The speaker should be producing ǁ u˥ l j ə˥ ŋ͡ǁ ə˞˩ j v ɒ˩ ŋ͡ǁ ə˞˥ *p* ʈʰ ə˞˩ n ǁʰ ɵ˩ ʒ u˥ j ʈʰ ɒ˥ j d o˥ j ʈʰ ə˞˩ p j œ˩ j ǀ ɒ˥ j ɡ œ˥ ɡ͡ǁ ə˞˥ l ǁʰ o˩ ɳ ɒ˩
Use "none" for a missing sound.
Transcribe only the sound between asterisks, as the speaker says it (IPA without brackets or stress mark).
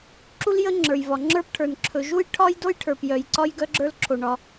p